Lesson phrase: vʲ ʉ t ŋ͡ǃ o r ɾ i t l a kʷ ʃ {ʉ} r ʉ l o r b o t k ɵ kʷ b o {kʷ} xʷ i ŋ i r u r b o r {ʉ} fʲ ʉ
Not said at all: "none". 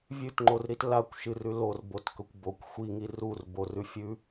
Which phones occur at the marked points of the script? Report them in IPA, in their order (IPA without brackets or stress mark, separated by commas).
ɨ, kʷ, ʉ